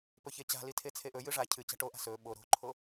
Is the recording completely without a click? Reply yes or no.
no